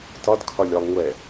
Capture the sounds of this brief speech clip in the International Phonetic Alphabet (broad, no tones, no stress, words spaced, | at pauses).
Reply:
tɒd kʰɒlʲɒlˠŋʷɛ